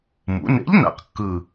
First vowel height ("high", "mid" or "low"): high